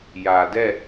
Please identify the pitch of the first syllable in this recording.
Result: low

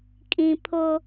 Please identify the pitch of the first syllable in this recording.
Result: high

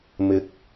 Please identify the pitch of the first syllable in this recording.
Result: rising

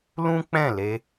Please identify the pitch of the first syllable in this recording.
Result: high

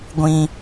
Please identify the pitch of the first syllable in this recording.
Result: high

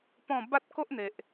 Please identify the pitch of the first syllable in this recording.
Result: falling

